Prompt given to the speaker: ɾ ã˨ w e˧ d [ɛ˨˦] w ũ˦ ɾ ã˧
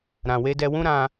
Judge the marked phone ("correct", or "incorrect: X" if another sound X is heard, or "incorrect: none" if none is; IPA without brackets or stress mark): incorrect: ɛ˧